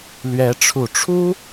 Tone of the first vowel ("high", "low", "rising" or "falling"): rising